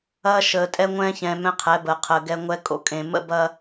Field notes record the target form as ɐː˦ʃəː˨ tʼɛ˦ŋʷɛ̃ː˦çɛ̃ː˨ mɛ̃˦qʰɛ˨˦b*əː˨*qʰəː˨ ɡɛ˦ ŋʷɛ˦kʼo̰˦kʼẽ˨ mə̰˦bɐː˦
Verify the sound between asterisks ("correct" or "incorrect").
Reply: correct